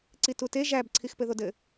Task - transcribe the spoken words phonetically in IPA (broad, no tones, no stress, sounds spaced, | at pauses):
ǀ i t u t e ʒ æ b ǀʰ i x p ɘ ð o d ɘ